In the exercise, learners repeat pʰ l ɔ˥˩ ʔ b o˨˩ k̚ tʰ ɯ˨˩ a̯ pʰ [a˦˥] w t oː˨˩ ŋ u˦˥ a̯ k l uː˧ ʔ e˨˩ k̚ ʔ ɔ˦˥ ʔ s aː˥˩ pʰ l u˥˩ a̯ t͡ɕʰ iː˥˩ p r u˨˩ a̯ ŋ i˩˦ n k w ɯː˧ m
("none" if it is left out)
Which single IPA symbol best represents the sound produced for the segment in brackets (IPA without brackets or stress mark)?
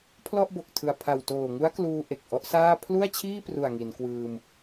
a˨˩